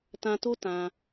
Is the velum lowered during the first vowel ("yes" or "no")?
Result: yes